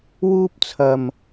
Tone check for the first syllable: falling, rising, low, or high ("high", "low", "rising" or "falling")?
high